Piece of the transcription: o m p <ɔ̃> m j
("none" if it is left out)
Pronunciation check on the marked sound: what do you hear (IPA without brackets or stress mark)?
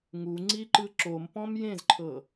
ɔ̃